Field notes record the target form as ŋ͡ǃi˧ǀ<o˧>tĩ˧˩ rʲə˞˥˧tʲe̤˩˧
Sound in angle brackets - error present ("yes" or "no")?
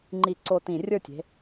no